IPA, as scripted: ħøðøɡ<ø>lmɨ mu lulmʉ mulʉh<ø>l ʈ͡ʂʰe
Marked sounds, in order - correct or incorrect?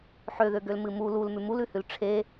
correct, incorrect

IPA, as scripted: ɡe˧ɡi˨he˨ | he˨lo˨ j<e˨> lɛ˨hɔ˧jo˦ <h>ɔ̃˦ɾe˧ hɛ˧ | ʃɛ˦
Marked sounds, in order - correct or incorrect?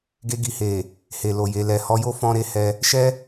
correct, incorrect

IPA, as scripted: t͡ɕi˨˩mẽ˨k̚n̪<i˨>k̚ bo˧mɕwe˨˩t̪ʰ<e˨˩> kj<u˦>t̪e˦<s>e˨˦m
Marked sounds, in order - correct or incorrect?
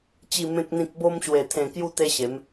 incorrect, incorrect, incorrect, incorrect

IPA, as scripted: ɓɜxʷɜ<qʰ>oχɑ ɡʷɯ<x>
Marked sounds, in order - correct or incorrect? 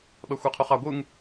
correct, incorrect

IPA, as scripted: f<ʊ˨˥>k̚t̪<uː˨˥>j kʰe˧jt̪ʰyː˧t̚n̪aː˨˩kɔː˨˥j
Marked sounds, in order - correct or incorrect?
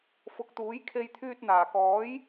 correct, correct

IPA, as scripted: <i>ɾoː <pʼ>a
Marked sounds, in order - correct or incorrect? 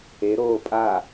incorrect, correct

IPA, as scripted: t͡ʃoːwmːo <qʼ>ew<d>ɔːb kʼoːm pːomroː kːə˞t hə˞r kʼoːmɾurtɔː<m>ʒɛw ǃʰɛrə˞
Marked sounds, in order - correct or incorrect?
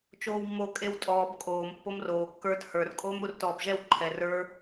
incorrect, incorrect, incorrect

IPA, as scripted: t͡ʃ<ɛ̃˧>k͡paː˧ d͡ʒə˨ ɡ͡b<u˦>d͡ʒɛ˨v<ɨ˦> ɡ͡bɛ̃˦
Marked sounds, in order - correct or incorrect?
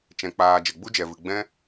correct, correct, incorrect

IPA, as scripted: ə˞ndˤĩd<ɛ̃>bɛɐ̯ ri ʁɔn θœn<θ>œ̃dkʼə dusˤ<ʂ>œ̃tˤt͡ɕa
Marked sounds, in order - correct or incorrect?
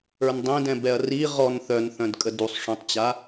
correct, correct, correct

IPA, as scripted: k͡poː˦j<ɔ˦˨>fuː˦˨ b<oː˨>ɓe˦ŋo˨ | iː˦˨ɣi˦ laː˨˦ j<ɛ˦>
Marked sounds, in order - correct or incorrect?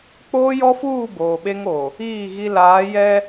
incorrect, correct, correct

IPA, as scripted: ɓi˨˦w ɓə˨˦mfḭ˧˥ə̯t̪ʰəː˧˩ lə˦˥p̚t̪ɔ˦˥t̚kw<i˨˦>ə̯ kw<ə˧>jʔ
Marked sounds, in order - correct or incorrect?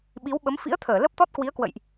correct, incorrect

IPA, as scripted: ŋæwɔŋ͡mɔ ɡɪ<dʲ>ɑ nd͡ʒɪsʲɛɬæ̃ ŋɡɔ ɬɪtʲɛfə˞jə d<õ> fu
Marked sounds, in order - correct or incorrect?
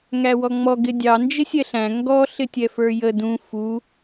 correct, incorrect

